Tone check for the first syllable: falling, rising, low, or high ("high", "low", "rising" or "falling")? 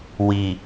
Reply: low